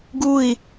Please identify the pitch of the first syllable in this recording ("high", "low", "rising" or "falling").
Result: falling